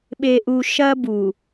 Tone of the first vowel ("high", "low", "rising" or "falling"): low